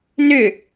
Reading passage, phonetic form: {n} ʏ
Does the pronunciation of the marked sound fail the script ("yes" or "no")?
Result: no